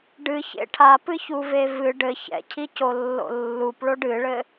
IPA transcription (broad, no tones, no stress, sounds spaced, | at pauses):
ɖ ɨ ç ḛ ʈʰ a p ɨ ç u v e v ɨ ɖ ɘ ç ɛ̰ cʰ i c o lː o̰ lː u p ɭ o ɖ ɨ ɭ ɘ